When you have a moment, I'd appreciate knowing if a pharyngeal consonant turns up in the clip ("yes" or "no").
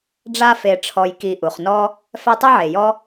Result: yes